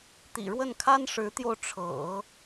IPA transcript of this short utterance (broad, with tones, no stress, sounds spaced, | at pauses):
t̪ ḭ˨˩ ɻ w ə˥˩ n kʰ a˥ n ʂ ɻ̩˧˥ t̪ j o˧ ʊ̯ ʈ͡ʂʰ ɤ̰˨˩˦